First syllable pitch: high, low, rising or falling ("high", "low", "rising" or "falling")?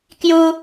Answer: high